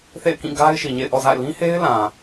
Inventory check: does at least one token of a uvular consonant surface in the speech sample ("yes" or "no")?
no